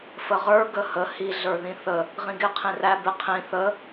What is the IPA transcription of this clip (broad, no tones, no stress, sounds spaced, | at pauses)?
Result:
f ə ʁ ə˞ ɡ ə h ə h i ɮ ə˞ ð ĩ θ ə | ʁ ĩ ɡ ɪ qʰ ĩ r æ b ɪ qʰ ĩ θ ə